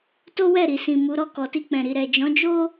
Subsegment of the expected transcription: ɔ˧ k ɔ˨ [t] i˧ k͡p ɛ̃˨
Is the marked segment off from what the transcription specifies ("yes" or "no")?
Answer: no